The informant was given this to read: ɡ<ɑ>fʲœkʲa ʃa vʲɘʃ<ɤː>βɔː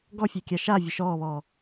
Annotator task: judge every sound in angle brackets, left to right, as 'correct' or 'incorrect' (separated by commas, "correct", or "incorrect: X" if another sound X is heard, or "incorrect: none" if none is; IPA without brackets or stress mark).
incorrect: ɔ, incorrect: ɔː